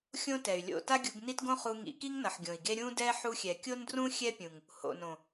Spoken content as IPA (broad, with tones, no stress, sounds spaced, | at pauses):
xʲ õ˦ t ɛ˨ y̯ lʲ o̰˦˨ t a˦ ɡʲ u˧ ɡ n i˦ t ɡ õ˦ χ u˧ ŋ ḭ˨˦ k i˦ ŋ n ʌ˨ ħ ɡʲ õ˨ i̯ ɡ e˦ ɾʲ ũ˦ d ɛ˦ ħ u˧ xʲ ɛ˨ kʲ o˦ n d r ũ˦ xʲ ɛ˦ pʲ ũ˨ ŋ | h o̰˨ n õ˨